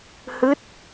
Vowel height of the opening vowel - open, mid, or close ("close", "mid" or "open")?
close